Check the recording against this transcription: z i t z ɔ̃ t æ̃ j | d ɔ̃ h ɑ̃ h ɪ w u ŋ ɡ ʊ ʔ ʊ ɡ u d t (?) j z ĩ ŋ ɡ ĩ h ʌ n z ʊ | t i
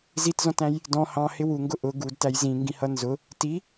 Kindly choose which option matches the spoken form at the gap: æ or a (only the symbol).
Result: æ